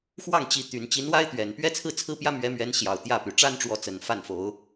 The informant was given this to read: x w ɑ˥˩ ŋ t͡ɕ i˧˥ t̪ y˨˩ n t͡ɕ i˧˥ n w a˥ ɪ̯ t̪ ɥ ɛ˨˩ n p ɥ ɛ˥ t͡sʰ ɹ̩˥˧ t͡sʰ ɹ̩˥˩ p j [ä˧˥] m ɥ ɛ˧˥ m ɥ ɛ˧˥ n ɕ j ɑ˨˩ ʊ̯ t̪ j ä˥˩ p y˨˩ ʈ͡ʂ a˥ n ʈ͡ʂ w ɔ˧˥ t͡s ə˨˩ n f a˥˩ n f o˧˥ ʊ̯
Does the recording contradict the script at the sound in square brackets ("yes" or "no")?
yes